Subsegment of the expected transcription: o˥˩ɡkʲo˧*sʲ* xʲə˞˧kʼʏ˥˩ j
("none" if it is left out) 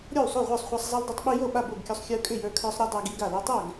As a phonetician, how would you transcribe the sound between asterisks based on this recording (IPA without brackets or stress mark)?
sˤ